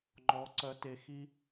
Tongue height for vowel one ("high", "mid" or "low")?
mid